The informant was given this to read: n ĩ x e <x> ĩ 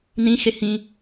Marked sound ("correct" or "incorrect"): incorrect